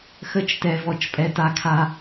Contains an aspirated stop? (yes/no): yes